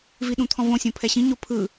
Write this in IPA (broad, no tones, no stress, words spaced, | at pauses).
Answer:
viɗũt̪ʰɔ̃võ sʲõpʰɛɕĩ ɲopʰɯ